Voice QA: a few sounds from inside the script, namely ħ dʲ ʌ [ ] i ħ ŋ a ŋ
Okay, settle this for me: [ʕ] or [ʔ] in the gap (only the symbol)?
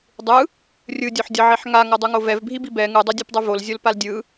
ʕ